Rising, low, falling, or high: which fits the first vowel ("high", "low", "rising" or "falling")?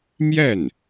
falling